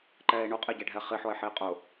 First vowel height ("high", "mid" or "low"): mid